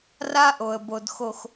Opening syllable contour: high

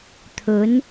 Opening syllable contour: rising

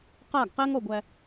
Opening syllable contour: falling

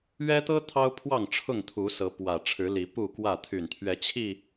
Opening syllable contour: high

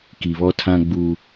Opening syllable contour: low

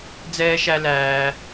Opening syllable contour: high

